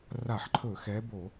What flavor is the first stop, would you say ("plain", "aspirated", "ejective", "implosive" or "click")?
click